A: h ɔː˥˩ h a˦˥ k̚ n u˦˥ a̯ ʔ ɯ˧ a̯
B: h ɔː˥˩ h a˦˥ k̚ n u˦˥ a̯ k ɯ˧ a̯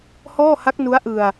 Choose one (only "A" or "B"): A